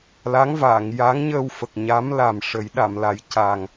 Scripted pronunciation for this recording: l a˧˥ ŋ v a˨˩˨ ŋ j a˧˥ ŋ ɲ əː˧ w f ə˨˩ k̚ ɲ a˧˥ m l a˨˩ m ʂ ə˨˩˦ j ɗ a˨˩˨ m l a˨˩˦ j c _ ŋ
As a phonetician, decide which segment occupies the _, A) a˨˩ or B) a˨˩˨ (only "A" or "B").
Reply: A